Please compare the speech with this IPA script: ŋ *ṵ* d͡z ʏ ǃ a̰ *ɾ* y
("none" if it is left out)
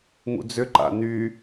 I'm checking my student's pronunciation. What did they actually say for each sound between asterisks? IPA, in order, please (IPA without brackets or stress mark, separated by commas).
ṵ, n